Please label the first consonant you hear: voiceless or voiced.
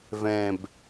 voiced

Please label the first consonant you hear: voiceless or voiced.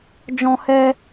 voiced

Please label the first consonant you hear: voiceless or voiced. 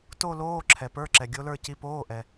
voiceless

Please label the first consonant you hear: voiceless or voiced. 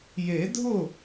voiced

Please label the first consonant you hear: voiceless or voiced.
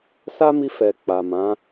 voiceless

